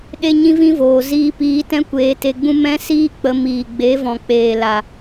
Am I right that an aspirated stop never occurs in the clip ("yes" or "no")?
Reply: yes